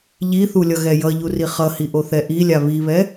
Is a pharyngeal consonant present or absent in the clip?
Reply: absent